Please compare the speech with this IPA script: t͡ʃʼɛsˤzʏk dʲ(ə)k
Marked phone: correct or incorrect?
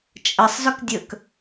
correct